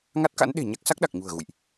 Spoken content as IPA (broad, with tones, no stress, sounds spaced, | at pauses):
ŋ a˦˥ t̚ k a̰˧˥ n ɗ e̤˨˩ ɲ a˦˥ k̚ s a˦˥ k̚ ɗ a˨˩ k̚ ɲ ṳ˨˩ ə̯ ɣ ṵ˧˨ j ʔ